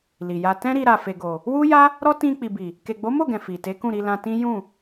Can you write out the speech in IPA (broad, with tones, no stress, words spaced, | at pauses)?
li˨ja˧ tɛ̃˦ ɾi˧ɾa˨ fe˨ɡo˨ | wu˦ ja˦ | ɾɔ˦ tĩ˧ k͡pi˨bi˨ | ke˨ɡ͡bo˨˦mo˦˨ɡɛ̃˨ fi˨ te˨˦kũ˦˨ɾi˧ lã˧tĩ˦ jũ˦˨